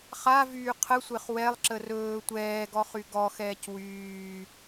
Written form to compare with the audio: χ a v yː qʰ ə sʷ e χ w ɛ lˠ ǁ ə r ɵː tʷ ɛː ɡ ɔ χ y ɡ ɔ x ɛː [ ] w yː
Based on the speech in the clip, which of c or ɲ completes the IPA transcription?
c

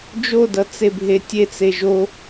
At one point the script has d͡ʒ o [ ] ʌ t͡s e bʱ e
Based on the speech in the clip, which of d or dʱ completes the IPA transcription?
d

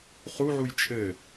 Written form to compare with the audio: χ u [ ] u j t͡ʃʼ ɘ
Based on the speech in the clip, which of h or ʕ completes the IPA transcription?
ʕ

